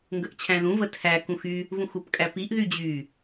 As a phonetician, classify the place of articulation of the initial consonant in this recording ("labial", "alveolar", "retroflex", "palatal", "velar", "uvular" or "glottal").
velar